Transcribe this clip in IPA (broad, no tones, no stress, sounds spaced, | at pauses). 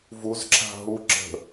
v u z ǁ a̤ ɦ u ǁ ə̤